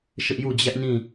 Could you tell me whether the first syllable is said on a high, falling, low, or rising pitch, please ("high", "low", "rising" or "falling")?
high